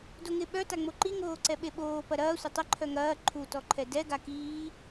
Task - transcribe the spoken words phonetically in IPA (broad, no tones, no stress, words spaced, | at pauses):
doŋɪ ɓœ taŋ͡moǃi ŋoːǀɛɓeɓoː pɐɾɐː sʷɐtˤɐ ǃʰœŋɐː ǃʰu tɔǃʰɛdɛ ɡakiː